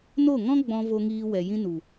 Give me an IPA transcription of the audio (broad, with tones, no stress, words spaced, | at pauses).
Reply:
no˦˨ŋɔ̃˦ ɡ͡bɔ̃˧ vo˧ŋiː˧wɛ˨ jĩ˧nu˨